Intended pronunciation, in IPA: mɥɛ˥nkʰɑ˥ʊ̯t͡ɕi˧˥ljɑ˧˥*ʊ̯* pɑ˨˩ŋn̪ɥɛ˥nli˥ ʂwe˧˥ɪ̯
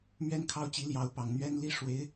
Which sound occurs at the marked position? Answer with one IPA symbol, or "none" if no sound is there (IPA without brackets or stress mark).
ʊ̯